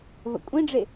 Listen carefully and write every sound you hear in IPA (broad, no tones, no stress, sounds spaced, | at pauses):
v ə̰ kʷʼ ĩ ɖ͡ʐ e